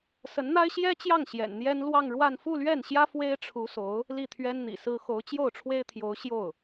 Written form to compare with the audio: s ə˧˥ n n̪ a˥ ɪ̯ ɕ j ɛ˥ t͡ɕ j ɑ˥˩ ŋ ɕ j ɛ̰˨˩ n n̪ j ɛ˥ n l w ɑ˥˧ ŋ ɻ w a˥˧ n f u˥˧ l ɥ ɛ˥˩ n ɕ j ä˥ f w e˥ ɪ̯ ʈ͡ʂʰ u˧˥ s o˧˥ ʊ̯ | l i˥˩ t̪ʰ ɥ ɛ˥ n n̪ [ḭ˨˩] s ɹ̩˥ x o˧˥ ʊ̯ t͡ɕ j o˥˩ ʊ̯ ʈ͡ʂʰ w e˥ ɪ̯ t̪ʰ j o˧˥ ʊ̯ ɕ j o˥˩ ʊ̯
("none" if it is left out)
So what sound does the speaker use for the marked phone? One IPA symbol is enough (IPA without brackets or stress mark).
ḭ˨˩